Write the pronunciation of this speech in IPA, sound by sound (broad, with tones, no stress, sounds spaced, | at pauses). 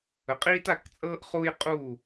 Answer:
ə˨˦ qʼ iː˥ t a˥˨ k t͡sʼ ɤː˥ ʔ χ u˥ j qʼ uː˥˨